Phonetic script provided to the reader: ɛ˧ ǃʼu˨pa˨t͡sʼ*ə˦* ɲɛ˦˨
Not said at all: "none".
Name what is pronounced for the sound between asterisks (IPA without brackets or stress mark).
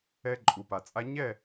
a˦